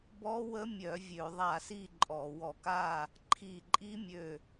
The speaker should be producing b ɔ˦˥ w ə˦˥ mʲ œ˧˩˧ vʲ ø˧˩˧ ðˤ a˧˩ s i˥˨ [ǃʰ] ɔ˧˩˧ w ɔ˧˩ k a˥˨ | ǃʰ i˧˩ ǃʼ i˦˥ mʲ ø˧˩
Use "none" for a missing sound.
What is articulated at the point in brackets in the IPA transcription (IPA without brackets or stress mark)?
ǃʼ